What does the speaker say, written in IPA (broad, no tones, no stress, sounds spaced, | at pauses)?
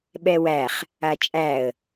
ɓ ɛ w æ χ | a t͡ʃʼ æ ə̯